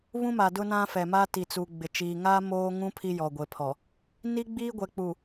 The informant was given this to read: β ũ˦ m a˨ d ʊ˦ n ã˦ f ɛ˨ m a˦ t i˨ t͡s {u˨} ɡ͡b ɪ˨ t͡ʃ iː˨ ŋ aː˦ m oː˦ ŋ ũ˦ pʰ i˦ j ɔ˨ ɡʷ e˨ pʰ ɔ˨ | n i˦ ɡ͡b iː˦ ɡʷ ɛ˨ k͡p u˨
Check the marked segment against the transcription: correct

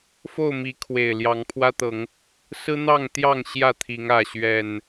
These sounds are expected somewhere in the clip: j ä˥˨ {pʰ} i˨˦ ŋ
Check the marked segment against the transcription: incorrect: t̪ʰ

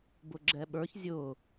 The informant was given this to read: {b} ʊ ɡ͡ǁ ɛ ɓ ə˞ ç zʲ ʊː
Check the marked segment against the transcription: correct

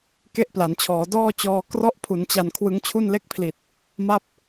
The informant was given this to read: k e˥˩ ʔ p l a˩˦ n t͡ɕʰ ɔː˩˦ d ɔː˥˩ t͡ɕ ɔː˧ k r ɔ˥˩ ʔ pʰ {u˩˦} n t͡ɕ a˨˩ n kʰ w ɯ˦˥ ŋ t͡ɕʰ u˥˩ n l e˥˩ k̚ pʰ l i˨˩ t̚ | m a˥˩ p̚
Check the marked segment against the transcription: correct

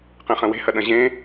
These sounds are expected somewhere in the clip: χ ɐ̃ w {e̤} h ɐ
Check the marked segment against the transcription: correct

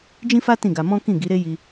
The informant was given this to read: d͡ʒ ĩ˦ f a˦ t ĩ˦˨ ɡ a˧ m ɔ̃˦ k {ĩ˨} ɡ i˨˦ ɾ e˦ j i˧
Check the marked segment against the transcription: incorrect: ĩ˦˨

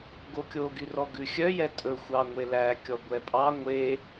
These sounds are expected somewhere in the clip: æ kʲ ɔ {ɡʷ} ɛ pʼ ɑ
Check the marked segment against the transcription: correct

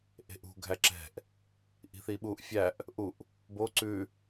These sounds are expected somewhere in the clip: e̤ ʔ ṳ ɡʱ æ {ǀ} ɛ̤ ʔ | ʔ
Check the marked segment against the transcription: incorrect: ǁ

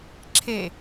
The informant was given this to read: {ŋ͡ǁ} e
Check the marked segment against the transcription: incorrect: ǁʰ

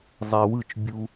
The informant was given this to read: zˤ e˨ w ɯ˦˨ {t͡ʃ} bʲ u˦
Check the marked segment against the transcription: correct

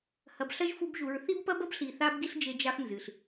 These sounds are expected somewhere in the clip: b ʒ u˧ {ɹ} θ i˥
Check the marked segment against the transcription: correct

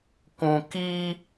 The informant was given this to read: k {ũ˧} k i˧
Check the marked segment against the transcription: correct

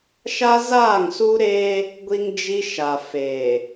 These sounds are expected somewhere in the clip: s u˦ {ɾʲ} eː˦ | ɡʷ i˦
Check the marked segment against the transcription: incorrect: ɾ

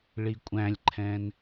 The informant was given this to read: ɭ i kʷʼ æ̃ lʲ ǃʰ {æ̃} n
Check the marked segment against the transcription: incorrect: ɛ̃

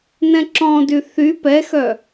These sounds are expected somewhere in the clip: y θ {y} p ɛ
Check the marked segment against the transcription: correct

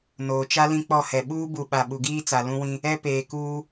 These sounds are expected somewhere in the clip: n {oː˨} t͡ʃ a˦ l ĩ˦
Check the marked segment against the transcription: correct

